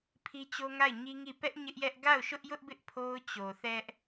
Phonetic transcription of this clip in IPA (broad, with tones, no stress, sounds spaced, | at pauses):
pʰ i˦ t͡ɕ o˦ ŋ a˦˨ ɪ̯ ɲ i˦ ŋ i˦˨ p ɛ˦ ʔ ɲ ɪ˦ ʔ j ɛ˦ ʔ ɡ a˦˨ ʊ̯ ʃ ʊ˦ ʔ j ʊ˦ ʔ b ɪ˦ ʔ pʰ o˦ ʊ̯ t͡ɕ o˨ θ ɛ˦ ʔ